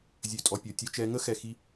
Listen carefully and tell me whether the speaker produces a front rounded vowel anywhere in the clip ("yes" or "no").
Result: yes